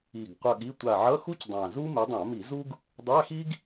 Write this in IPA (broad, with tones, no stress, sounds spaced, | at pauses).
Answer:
i˨˩ ɡ qʷ ʌ˦˨ ɠ i˧˥˧ tʷ a˦˨ ʕ ʌ˧˥˧ x u˥ c dˤ ã˨˩ z u˥ m e˨˦ dˤ ã˧˩˧ m i˧˩˧ z u˥ ɡ | dˤ a˧˥˧ x i˥ ɡ